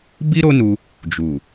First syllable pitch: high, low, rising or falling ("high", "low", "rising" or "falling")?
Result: high